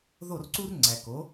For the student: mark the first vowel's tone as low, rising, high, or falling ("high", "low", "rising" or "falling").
falling